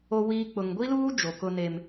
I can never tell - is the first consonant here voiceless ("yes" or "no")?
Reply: no